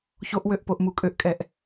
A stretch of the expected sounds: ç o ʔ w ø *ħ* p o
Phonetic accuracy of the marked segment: incorrect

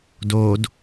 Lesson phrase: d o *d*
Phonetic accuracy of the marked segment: correct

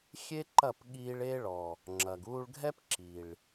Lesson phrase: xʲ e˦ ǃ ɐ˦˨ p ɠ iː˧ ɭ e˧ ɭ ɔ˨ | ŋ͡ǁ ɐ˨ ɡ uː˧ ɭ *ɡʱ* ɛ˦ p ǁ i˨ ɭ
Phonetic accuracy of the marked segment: correct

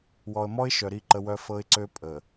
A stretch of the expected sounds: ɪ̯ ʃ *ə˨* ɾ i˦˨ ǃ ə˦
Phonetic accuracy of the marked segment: incorrect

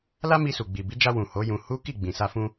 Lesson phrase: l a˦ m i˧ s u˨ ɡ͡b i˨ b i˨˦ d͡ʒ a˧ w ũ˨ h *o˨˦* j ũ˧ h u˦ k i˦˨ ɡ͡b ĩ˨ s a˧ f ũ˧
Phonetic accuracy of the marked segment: correct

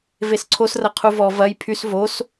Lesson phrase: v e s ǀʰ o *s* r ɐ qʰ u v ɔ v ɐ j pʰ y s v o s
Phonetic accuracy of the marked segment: correct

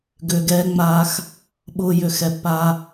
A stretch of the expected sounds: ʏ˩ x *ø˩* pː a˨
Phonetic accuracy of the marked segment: incorrect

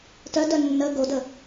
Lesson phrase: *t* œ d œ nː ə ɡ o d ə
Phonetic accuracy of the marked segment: correct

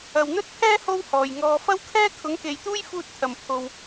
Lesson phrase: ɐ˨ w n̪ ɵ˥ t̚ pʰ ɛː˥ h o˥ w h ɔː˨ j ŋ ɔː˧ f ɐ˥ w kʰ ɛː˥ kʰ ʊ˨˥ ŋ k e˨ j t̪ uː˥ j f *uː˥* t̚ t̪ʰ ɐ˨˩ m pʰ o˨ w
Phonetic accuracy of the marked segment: incorrect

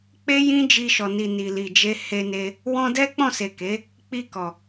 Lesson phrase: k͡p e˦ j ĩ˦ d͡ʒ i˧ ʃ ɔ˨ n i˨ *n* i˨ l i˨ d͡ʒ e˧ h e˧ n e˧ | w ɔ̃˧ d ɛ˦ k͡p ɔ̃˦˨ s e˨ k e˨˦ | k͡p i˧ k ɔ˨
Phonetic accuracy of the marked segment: correct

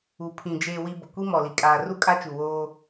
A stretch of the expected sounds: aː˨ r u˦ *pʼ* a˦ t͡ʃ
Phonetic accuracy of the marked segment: incorrect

